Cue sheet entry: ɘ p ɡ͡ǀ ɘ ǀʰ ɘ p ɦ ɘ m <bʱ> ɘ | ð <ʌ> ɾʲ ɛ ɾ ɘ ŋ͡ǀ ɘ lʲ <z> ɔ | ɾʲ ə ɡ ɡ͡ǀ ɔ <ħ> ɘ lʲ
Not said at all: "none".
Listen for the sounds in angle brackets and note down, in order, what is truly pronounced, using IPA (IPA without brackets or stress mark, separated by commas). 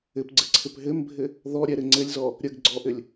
bʱ, ɔ, z, ʔ